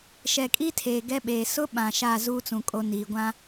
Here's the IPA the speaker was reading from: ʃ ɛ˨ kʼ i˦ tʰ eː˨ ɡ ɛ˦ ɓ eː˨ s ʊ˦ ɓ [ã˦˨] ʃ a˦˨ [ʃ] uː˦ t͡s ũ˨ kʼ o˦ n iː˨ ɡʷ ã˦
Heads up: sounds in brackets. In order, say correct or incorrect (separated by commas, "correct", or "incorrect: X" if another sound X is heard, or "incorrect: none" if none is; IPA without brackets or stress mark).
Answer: incorrect: ã˨, incorrect: z